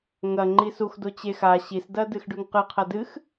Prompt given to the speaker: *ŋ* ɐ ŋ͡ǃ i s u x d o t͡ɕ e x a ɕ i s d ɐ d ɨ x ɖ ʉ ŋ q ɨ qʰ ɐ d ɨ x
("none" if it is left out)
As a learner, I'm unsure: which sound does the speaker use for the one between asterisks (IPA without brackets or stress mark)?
ŋ